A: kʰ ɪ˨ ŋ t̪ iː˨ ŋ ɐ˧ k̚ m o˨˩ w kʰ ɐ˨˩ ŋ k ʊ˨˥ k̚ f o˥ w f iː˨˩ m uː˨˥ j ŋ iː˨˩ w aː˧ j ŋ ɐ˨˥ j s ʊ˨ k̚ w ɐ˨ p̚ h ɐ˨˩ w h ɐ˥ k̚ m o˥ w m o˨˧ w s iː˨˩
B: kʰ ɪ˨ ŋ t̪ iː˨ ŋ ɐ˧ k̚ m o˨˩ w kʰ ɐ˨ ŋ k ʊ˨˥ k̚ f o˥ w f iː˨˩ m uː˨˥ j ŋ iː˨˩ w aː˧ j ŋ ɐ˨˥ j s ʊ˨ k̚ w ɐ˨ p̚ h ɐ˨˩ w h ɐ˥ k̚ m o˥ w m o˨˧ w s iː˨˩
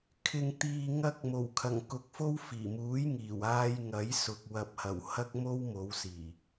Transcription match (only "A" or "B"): A